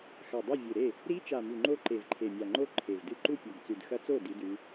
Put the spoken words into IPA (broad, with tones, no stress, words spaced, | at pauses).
xa˨˩dˤe˥˩vʲɨ˨˩ɾe˥˩ | ɾi˧˥ t͡ʃa˨˩mʉ˨˩ŋ͡ǃo˧˥ ǃe˨˩vǃʰe˨˩mʲa˨˩ŋ͡ǃo˥˩ ǃʰe˨˩vdɨ˥˩ ǃu˥˩pʲo˨˩ɡt͡sʉ˨˩d xɐ˧˥t͡so˥˩ di˧˥dʉ˧˥